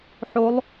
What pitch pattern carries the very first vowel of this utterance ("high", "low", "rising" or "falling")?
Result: rising